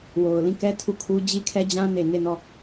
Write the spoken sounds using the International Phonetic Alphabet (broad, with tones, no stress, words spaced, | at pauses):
wo˨ʊ̯ lĩ˦˨kɛ˦ tʰu˦˨kʰu˦ d͡ʑi˦kʰɛ˦d͡ʑã˦ ne˨ne˦˨nɔ˦˨